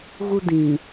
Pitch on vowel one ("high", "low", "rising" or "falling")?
high